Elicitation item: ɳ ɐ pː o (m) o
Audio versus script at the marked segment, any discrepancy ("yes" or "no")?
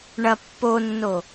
yes